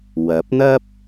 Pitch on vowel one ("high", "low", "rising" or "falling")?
rising